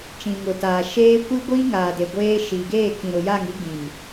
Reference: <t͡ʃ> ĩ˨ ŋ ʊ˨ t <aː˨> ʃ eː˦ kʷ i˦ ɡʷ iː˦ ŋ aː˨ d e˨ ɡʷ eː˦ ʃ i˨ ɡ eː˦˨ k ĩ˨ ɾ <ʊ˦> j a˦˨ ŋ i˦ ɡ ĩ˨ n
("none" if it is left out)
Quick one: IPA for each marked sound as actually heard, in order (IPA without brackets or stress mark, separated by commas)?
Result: t͡ʃ, aː˨, ʊ˨